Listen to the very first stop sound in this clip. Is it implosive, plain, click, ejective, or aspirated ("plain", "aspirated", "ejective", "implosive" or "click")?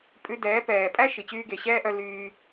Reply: ejective